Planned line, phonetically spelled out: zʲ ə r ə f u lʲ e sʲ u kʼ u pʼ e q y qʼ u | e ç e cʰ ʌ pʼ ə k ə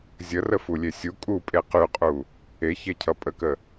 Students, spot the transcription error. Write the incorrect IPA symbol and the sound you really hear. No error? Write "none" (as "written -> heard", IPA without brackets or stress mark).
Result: none